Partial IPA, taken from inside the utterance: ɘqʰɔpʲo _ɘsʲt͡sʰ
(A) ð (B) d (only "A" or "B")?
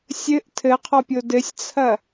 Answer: B